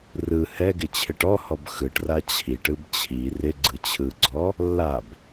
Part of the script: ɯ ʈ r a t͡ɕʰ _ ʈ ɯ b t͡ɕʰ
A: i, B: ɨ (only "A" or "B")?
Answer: A